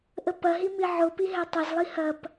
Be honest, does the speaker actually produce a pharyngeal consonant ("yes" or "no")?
yes